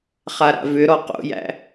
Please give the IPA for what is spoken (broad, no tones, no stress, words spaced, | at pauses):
χaɾa̰vʏɾɔ qo̰jæ̰